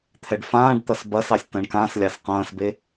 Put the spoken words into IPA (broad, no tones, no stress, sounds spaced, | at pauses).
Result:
t̪ʰ ɛ ɖ f ãː ɖ t̪ ɐ s b ɐ s ɑ sʲ t ɐ̃ ɳ k ã s lʲ ɑ s q ɐ̃ː s b e